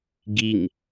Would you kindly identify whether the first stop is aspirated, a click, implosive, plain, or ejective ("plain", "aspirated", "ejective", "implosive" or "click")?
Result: plain